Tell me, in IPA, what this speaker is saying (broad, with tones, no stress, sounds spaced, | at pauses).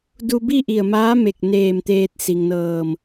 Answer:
d u˧ b i˥˨ ʔ i˧˩ ə̯ m aː˧˥ m e˧˩ k̚ n eː˧˩ m t̪ eː˧ t̚ s i˩ ŋ n ɤː˧˩ m